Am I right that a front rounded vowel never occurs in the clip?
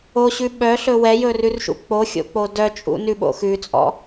no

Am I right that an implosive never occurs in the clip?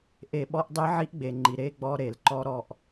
no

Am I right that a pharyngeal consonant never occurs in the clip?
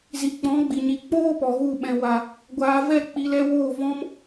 yes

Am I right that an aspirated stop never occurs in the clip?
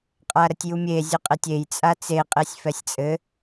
yes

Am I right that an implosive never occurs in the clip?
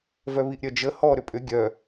yes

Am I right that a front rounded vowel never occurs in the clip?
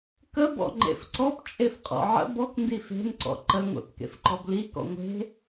yes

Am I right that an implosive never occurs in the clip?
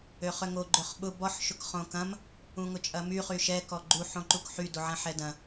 no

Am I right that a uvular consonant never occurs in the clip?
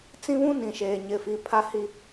yes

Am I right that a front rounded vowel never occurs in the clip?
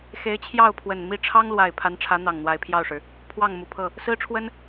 yes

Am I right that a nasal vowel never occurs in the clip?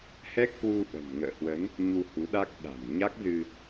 yes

